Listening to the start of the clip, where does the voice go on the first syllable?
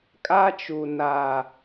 high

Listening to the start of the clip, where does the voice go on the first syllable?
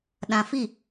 low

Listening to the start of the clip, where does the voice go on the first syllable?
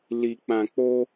low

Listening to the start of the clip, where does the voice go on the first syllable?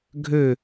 falling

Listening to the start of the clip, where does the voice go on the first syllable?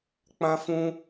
high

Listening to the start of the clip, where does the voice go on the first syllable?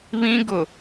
high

